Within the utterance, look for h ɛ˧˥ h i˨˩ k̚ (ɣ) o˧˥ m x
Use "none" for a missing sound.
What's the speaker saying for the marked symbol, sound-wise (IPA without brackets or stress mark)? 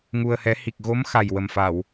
ɣ